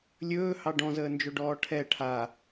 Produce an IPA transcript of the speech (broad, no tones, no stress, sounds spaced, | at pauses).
lʲ ɵː h ɑ ɖ ɔ̃ z əː n d͡ʒ ɵ ɖ ɔː ʈʰ ɛ ʈʰ a